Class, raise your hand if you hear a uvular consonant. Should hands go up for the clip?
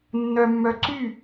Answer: no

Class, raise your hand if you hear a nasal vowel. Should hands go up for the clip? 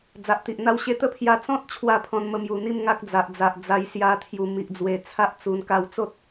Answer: yes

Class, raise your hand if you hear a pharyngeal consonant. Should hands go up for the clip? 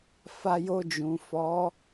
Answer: no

